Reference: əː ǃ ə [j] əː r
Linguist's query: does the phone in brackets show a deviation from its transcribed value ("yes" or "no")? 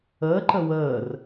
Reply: yes